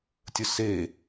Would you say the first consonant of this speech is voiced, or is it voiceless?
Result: voiceless